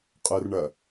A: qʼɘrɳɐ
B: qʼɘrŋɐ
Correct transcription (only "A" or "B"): A